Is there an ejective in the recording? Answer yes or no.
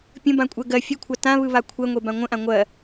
yes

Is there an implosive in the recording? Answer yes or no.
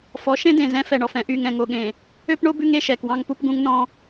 yes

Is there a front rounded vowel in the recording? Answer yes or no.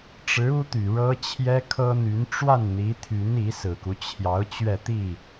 yes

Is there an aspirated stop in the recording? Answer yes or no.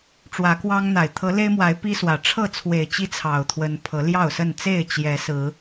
yes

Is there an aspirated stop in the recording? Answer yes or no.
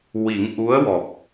no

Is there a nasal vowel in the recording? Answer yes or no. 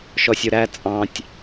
yes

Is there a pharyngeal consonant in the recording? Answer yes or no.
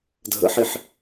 yes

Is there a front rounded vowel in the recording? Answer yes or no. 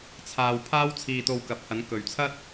no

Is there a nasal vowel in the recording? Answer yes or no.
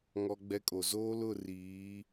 no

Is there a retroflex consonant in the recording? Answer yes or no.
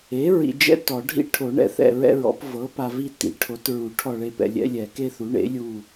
yes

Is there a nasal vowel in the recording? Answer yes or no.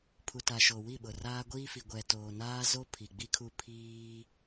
no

